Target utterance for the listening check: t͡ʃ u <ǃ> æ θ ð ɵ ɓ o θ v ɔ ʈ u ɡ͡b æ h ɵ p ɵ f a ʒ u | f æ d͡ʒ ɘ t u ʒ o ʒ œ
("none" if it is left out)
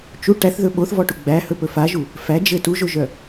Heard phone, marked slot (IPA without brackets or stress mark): ʈ